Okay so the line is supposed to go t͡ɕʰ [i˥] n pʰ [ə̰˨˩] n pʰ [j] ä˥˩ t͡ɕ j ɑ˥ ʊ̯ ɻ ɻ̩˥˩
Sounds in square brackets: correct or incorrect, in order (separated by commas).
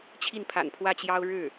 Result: incorrect, incorrect, incorrect